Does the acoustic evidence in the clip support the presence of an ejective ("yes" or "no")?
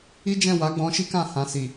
no